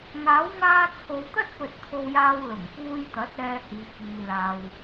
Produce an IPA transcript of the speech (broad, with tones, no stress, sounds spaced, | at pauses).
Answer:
ŋ aː˨˥ w ŋ aː˧ t͡sʰ o˨ w t̪ ɐ˥ t̚ p ɵ˧ t̚ t̪ʰ o˧ w j aː˧ w l ʊ˨˩ ŋ p uː˧ j t̪ ɐ˨˥ t̚ ɛː˧ h iː˨˧ k iː˨ l aː˨ w